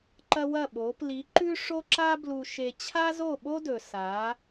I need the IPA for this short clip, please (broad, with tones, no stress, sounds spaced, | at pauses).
ǃ ɐ˦ w ɐ˦˨ ɓ o˨˦ p l i˨˦ ǃ ʉ˦ ʂ o˦ ǁ a˦ b l u˧ ʃ e˧ t͡ɕʰ a˦ z o˦˨ ɓ o˦ d ɵ˨ s a˨˦